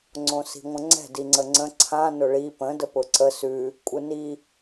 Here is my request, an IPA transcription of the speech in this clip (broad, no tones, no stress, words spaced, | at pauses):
ŋ͡ǀõsi̤ŋʷə̃ŋ͡ǀɛ̤ diŋ͡ǀəŋ͡ǀə̃ ǀʰã nʊɭi pə̃ dəpʊǀə sʉ | kʷʼɯni